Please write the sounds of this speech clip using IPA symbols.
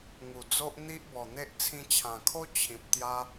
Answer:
ŋ u˨˩ d͡z o˦ ʔ n̪ i˦ ʔ b ɔ˨˩ n̪ e˦ ʔ t͡sʰ ĩ˧ t͡ɕʰ ã˨˩ kʰ o˦ t͡ɕʰ ĩ˨ p̚ t̪ j a˦

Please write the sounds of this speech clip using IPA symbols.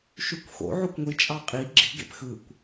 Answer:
ʃ y kʷ x o̰ ʕ o kʷ ŋʷ i t͡ʃʼ ɑ qʼ i ɡ͡ǁ i̤ ɡ ḛ p x ɯ kʷ

